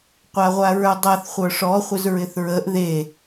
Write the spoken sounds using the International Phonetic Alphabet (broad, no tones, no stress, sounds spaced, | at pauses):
qʷ a ʁʷ a ɹ ə˞ dˤ a θ χʷ ə˞ ʂ ɔ χʷ ɪ z ɹ ɪ θ ɹ ə ʔ ð e